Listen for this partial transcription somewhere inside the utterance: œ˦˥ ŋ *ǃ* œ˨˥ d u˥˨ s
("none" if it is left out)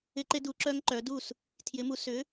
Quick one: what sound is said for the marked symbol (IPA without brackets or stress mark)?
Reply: ǃ